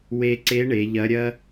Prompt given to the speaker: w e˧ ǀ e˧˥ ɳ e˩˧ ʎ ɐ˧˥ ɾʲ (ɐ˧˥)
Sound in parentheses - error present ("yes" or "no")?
yes